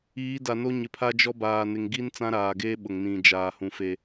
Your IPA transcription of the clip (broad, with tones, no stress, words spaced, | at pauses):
iː˨˦da˨no˦ ɲɪ˨pʰa˦d͡ʒɔ˦baː˨ nɪ˨ŋɡi˦n t͡sã˦ɾaː˨ɡeː˦ ɓʊ˨ŋnĩ˨ d͡ʒaː˨hũ˨fe˨